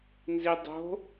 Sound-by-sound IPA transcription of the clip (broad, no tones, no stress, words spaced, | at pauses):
nzidˤo̤